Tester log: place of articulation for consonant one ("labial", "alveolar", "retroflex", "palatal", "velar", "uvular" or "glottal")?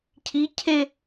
palatal